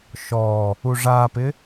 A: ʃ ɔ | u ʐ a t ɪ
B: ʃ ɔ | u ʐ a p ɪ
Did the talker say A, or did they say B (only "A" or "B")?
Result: B